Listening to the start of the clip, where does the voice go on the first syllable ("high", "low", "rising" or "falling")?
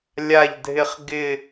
falling